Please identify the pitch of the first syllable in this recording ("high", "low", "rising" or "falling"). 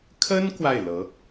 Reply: high